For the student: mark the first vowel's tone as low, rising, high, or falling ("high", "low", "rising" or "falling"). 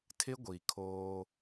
high